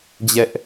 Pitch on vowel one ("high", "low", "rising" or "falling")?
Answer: high